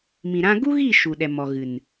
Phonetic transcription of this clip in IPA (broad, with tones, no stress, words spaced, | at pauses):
mĩ˨ɾã˧ɡu˦ɣiː˦˨ ʃu˨ɗɛ˨ mɔ˨ɣɨ˨n